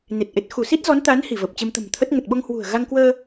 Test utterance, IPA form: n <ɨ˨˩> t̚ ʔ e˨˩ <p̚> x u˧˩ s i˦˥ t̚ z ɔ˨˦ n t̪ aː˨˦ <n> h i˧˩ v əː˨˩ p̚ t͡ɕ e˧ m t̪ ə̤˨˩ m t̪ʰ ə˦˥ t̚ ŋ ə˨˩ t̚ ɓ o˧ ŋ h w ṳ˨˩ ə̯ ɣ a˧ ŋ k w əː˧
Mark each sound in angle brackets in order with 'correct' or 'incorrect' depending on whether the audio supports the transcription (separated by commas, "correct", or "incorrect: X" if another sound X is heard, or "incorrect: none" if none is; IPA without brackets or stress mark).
incorrect: e˨˩, incorrect: t̚, correct